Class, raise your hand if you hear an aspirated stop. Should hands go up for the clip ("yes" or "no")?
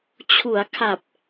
yes